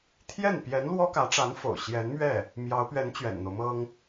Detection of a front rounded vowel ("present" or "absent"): absent